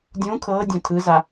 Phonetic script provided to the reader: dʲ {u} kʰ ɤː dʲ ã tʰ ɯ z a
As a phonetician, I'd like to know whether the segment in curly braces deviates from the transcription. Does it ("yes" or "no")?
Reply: yes